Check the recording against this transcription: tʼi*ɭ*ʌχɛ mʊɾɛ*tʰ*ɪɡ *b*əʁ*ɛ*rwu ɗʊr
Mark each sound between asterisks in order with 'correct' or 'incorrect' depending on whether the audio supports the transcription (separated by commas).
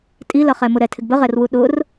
incorrect, correct, correct, correct